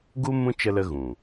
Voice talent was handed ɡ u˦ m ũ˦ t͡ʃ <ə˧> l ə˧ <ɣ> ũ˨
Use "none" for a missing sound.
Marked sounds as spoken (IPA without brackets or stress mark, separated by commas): ə˧, ɣ